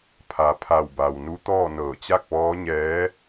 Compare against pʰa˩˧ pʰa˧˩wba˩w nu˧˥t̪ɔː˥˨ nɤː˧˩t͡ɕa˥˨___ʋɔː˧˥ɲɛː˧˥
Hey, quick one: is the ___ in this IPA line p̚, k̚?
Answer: k̚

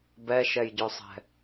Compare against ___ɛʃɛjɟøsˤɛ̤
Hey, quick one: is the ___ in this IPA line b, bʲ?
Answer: b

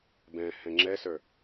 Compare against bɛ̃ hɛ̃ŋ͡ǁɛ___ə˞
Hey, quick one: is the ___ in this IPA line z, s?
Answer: s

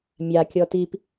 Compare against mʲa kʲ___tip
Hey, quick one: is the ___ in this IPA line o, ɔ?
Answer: ɔ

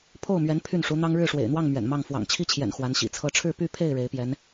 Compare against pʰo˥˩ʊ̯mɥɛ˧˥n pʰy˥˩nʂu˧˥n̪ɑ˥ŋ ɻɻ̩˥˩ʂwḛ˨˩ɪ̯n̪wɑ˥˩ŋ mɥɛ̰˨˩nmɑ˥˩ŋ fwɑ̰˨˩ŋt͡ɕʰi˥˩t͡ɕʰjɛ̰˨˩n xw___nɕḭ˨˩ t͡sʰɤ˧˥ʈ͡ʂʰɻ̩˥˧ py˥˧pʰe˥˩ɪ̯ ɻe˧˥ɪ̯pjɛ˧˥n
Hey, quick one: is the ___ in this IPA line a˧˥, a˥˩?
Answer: a˧˥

